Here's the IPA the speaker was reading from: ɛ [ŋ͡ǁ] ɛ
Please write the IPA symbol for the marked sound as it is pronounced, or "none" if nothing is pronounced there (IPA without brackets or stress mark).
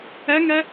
ŋ